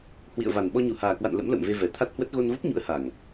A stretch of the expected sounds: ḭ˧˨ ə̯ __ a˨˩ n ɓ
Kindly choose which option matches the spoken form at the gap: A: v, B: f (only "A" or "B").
A